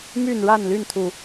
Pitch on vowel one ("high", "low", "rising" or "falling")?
falling